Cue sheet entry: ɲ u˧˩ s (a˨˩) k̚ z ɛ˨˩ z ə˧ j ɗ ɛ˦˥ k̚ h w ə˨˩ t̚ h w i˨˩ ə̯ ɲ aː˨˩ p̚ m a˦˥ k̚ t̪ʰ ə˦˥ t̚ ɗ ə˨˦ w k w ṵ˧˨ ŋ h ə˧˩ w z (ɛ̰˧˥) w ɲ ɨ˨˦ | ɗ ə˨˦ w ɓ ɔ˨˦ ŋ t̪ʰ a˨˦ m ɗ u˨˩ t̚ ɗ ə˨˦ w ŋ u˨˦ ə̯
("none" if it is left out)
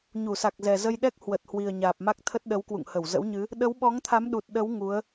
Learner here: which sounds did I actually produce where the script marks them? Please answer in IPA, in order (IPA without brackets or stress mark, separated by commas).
a˨˩, ə̰˧˥